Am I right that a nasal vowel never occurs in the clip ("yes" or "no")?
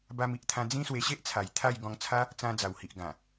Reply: no